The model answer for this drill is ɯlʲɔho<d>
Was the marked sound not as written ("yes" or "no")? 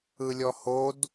no